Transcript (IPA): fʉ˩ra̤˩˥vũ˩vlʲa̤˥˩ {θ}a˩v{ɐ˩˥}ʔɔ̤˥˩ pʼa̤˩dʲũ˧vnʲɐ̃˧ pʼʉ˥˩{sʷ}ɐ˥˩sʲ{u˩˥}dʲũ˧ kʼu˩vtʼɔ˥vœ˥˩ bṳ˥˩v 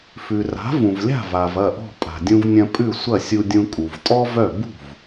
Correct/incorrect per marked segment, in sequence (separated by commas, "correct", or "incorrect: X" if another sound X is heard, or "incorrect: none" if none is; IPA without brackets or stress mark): incorrect: v, incorrect: ɐ˥˩, correct, incorrect: u˧